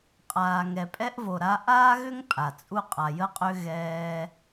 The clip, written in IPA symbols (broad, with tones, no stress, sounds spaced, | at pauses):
qʼ aː˩ ŋ ɛ˩ pʼ ɛ˧ ʔ v o˩ ɾ a˧ ʔ aː˥ ɣ ʏ˥ ŋ pʼ a˩ t͡sʼ u˧ qʼ a˩ j ə˧ qʼ ʏ˧ ɣ ɛː˧